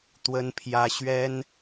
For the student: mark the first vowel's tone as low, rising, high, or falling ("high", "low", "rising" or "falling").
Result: high